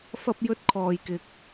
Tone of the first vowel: high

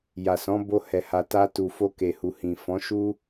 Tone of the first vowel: low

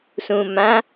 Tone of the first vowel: low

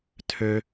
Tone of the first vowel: high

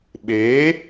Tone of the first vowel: rising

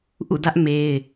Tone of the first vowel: falling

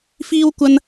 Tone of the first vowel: high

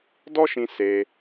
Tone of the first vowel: high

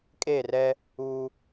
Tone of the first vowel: falling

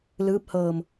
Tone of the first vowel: rising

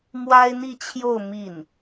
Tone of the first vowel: high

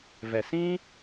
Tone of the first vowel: low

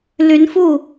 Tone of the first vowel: rising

